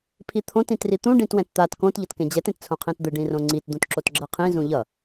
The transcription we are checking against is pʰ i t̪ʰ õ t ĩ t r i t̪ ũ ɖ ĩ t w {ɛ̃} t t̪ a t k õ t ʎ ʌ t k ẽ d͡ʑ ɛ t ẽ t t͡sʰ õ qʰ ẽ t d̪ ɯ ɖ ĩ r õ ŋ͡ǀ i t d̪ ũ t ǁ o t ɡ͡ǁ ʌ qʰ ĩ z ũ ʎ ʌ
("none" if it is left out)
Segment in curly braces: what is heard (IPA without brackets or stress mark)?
ɛ̃